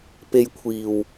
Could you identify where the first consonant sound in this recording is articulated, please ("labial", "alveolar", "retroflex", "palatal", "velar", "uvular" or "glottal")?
labial